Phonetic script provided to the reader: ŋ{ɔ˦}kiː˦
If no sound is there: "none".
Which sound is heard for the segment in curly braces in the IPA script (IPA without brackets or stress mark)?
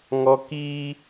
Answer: ɔ˦